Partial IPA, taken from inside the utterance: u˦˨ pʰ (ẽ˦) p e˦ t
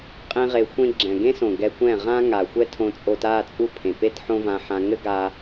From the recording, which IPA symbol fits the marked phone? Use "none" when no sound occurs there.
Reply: ẽ˨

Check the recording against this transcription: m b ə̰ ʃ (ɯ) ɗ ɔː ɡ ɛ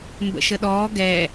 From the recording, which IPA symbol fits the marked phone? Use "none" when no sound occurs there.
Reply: ə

